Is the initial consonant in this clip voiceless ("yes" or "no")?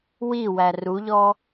no